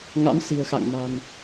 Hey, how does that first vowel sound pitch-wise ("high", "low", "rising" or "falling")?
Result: rising